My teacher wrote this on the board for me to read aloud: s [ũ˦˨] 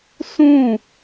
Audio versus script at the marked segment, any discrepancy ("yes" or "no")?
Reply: no